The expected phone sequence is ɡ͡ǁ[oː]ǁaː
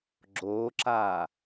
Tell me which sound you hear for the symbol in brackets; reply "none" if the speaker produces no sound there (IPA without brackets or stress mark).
oː